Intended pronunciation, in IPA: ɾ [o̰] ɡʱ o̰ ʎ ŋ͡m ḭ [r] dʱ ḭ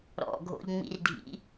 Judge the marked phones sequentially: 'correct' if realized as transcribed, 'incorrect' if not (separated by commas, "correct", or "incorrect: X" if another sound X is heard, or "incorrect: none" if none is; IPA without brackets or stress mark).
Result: incorrect: ɔ̰, correct